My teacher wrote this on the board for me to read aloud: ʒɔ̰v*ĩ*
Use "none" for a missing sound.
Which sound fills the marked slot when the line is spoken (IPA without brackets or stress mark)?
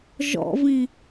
ĩ